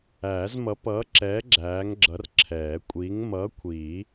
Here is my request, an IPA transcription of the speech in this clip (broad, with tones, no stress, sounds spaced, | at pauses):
æː˨˩˦ z m ʌ˨˥ p ʌː˨˥ ǁ ɛː˨˥ ɡ͡ǁ æː˨˥ ŋ ɡ͡ǁ ʌ˨˥ r ǁʰ ɛː˨˩˦ kʷʼ iː˨˥ ŋ m ʌː˨˥ kʷʰ iː˨˩˦